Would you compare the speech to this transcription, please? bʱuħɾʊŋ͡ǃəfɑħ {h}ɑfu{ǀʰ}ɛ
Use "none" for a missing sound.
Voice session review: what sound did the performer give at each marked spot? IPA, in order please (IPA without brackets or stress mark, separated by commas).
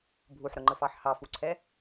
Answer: h, ǀʰ